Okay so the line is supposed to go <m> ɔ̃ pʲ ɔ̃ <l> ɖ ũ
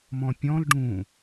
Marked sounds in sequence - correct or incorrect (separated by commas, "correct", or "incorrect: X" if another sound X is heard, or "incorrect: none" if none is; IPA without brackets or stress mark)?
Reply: correct, correct